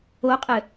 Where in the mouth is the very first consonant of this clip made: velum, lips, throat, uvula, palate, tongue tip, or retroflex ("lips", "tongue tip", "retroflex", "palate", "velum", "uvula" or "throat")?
uvula